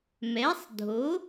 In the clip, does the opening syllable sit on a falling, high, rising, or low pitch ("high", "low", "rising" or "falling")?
rising